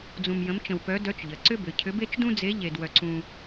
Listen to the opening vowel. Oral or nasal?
nasal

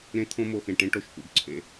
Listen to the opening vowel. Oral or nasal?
nasal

